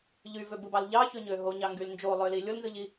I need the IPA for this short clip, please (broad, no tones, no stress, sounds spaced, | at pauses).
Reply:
ʎ y v ø b ɯ b ɑ l ʎ ɑ ç ø ɲ ø ɦ o ɲ ɑ ŋ ɡ y l n d͡ʒ o lˠ ø l i lʲ o l n z ɯ ʎ i